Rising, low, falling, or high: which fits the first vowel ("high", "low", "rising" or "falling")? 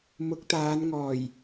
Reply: rising